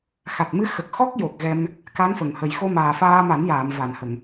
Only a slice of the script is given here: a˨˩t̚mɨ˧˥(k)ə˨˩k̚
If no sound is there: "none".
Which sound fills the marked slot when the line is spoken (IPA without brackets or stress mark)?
x